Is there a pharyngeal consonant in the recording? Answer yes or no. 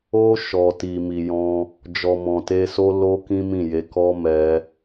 no